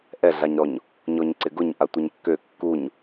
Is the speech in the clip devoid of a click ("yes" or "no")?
no